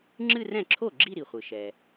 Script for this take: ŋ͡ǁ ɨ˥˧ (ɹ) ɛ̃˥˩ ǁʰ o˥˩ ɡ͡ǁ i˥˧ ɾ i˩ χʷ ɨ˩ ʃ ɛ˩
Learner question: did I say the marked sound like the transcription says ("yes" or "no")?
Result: no